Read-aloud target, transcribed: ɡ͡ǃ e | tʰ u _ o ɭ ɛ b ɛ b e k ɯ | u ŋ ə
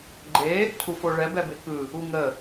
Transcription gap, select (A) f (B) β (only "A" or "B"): A